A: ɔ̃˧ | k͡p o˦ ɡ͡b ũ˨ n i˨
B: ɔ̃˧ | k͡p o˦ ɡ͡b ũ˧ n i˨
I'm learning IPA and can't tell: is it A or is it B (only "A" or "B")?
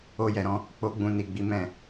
B